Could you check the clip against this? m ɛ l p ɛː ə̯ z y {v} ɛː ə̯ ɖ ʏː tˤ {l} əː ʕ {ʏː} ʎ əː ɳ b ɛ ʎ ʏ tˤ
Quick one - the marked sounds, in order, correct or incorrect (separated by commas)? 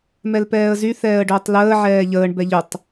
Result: incorrect, correct, incorrect